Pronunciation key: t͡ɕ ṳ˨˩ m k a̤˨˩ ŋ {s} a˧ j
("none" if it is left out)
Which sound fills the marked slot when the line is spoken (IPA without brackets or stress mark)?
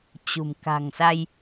s